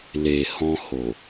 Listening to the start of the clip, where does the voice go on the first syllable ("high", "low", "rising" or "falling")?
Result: low